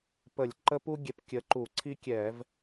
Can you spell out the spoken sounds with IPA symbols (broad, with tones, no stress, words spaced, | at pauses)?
pə˧˩˧lʲ ǃə˥pu˥ ɡʲɛ˨˥p kʲə˨˥ǃu˧˩˧ǀʰi˥ kʲɛ˧˩˧v